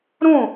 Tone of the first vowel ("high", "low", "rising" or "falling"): falling